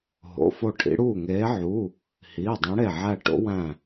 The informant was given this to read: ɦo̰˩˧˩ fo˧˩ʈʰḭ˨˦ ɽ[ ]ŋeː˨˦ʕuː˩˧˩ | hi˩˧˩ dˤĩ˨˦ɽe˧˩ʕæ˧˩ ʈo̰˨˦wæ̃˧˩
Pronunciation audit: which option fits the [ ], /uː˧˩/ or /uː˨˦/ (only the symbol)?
uː˧˩